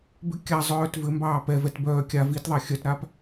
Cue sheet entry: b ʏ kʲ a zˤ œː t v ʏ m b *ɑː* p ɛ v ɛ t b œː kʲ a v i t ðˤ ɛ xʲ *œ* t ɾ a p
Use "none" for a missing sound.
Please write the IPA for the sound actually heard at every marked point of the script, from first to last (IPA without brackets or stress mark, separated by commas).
ɑː, œ